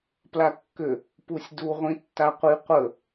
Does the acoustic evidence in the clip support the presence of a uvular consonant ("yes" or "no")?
yes